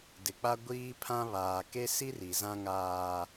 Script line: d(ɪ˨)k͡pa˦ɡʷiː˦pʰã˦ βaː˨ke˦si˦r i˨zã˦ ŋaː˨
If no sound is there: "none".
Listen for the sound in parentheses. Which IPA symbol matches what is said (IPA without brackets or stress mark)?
ɪ˨